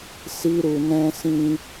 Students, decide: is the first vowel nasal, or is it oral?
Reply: oral